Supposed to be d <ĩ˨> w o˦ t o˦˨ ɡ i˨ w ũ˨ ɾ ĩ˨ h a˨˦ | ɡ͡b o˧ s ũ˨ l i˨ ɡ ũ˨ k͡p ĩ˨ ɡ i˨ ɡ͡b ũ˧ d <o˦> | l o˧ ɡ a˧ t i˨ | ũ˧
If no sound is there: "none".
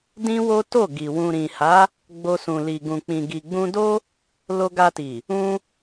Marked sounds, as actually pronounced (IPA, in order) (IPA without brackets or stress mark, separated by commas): ĩ˦, o˦